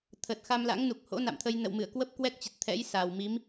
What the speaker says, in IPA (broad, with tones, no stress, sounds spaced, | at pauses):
t̪ʰ ə˨˩ t̚ x a˧ m l a̰˧˥ ŋ n u˨˩ k̚ h o̰˧˥ n a̰˧˨ m t̪ʰ ə˧ j n ə̰˧˨ w m ɨ˧˩ ə̯ k w ə˦˥ p̚ k w ɛ˦˥ k̚ t͡ɕ ə˨˩ t̚ t̪ʰ ɛ̰˧˥ j s a˨˩ w m i˨˦ m